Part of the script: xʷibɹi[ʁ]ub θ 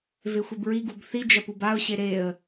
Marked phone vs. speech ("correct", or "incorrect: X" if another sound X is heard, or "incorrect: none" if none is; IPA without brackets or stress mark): incorrect: ɡ